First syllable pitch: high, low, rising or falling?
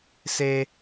high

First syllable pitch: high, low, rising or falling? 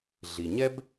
low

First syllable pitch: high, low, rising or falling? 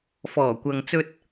low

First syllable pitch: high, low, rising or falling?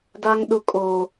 high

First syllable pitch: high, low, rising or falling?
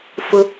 high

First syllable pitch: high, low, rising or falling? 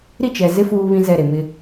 falling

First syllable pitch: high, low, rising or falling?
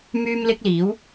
high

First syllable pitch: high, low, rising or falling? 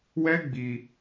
high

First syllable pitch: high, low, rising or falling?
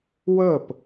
falling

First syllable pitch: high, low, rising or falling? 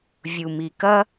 low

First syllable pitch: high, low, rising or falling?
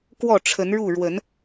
falling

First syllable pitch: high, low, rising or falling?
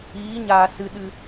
rising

